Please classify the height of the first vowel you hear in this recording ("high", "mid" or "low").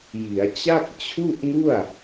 high